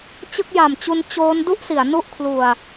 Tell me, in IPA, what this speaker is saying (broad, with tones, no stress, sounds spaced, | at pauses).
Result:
t͡ɕ ɯ˥˩ k̚ j a˨˩ m t͡ɕ u˧ n t͡ɕ oː˦˥ n d u˥˩ ʔ s i˩˦ a̯ n u˦˥ ʔ kʰ l u˨˩ a̯